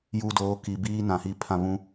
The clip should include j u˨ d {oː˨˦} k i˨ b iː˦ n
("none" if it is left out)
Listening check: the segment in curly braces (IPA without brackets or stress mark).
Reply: oː˨˦